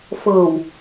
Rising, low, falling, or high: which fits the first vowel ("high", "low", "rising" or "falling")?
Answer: low